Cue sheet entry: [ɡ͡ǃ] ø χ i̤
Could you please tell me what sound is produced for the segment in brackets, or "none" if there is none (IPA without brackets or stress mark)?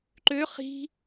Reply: ǃ